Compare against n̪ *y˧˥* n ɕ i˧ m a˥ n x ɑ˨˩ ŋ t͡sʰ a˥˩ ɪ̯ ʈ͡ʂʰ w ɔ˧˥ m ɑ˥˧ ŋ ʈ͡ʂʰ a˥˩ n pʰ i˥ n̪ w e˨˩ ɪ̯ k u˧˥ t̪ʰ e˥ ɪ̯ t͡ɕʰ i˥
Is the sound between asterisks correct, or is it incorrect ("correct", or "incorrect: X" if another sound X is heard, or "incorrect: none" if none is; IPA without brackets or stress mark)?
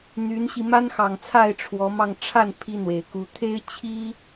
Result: correct